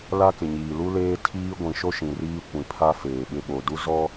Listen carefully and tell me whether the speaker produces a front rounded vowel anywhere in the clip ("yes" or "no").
no